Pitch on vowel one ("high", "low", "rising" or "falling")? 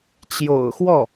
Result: low